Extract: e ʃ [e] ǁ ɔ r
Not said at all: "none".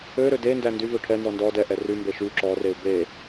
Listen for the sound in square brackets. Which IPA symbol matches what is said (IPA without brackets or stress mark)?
y